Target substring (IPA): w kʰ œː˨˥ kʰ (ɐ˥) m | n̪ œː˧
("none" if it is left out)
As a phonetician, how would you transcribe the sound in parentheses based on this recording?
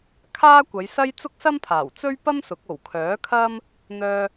ɐ˥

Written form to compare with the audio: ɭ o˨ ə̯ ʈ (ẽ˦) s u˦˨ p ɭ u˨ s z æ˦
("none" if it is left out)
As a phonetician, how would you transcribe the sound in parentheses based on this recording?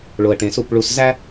ẽ˨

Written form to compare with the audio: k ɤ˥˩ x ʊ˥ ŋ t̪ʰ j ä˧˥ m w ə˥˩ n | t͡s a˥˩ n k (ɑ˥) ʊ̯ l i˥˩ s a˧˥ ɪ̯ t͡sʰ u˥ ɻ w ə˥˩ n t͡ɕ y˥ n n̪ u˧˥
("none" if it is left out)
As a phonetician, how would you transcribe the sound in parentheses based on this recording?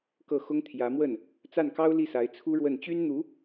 ɑ˥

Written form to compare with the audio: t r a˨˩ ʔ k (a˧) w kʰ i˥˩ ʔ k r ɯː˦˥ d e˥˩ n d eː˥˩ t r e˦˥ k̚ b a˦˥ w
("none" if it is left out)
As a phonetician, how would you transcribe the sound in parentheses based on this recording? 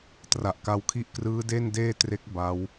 a˧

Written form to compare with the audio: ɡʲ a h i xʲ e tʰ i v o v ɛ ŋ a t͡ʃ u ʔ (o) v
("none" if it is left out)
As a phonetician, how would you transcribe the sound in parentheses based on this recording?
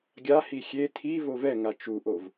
o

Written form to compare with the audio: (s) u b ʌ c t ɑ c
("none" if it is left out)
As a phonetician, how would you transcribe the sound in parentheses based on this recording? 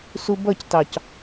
s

